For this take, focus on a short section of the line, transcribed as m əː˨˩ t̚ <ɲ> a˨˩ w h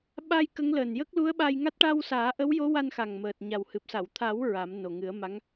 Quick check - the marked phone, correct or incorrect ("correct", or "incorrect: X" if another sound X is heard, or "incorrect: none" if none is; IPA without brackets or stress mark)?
correct